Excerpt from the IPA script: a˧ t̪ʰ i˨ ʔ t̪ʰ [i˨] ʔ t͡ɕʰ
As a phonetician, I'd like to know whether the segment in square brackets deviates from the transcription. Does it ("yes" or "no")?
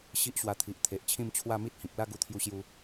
yes